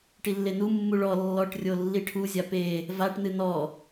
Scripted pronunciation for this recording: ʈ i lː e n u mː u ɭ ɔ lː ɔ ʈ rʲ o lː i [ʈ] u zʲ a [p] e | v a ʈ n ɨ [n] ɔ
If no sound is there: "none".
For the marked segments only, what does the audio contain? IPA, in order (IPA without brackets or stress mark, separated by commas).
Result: ʈʰ, p, n